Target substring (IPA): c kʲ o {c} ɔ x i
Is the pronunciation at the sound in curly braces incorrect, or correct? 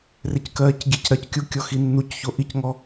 incorrect: kʲ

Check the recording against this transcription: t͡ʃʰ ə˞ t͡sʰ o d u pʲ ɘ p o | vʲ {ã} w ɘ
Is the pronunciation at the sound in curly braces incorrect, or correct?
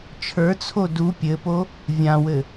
correct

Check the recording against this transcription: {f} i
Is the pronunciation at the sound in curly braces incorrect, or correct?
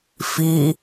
correct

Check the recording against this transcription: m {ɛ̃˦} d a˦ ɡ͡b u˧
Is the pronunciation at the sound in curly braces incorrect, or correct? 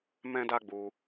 correct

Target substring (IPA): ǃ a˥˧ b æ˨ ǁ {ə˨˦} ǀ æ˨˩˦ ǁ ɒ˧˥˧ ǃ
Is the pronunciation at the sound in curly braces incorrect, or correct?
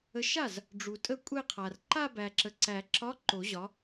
incorrect: ə˨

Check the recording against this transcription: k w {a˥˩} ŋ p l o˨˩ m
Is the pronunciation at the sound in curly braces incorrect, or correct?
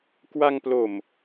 incorrect: a˧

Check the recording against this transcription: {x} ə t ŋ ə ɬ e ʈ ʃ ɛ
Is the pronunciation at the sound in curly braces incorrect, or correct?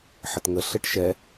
incorrect: ħ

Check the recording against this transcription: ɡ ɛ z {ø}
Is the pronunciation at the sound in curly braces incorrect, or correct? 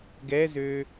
correct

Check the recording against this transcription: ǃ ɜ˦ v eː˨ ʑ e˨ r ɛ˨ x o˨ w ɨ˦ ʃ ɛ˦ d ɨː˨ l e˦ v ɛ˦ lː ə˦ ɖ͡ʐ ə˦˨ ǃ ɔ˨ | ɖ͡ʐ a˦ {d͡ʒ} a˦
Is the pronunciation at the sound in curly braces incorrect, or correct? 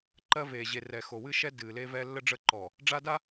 incorrect: d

